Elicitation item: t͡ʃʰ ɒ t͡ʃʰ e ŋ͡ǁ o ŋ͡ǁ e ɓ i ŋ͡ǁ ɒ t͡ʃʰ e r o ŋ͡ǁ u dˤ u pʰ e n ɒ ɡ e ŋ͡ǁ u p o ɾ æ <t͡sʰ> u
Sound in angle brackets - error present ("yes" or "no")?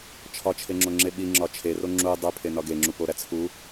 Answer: no